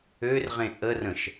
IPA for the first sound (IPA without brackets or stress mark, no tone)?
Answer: ø